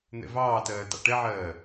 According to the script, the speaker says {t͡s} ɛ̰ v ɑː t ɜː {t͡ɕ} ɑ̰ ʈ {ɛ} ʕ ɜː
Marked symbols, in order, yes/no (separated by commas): no, no, yes